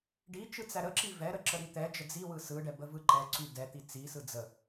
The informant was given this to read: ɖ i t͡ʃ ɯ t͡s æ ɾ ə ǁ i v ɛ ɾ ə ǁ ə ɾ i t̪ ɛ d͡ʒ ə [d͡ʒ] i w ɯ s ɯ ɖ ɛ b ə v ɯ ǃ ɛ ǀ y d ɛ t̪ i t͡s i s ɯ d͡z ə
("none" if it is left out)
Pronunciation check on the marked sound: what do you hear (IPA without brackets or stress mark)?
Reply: d͡z